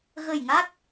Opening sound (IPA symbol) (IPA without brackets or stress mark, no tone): ɣ